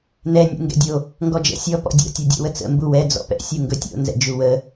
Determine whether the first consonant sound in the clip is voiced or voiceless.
voiced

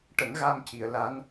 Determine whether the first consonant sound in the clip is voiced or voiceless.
voiceless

